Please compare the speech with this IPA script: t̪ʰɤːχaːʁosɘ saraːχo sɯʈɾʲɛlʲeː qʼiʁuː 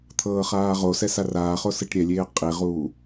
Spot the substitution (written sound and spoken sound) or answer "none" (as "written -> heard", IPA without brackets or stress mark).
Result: ɘ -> ɛ